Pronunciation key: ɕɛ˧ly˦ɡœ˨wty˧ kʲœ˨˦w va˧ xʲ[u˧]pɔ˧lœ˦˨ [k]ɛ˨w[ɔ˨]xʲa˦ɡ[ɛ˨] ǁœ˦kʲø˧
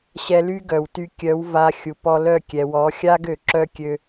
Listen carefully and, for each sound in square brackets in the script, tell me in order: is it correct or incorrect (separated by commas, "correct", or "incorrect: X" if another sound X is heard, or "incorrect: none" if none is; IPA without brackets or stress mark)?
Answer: incorrect: u˨, incorrect: kʲ, incorrect: ɔ˨˦, incorrect: ø˨